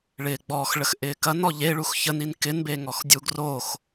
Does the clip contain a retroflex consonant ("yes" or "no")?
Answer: yes